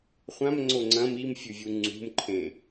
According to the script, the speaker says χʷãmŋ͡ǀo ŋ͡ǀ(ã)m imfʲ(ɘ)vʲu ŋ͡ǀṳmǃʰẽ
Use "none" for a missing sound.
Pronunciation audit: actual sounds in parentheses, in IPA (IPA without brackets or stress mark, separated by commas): ɐ̃, ʉ